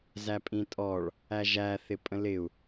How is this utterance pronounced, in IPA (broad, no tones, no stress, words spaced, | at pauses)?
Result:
zæpʼĩtʼɔɭ | æʒæ θɪpʼə̃lɪu̯